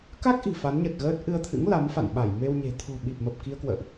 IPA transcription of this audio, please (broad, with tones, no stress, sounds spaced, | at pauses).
k a˦˥ k̚ ʔ i̤˨˩ f a˨˦ n ɲ ə˨˩ t̚ ɣ əː˦˥ t̚ ʔ ɨ˧ ə̯ t̪ʰ ɨ̰˧˥ ŋ l a˨˦ m f a̰˧˨ n ɓ a˧˩ j m e˧ w ɲ e̤˨˩ t̪ʰ o̤˨˩ ɓ i˨˩ p̚ m ə˨˩ p̚ k i˧ ə̯ k w ə̰ː˧˨ ʔ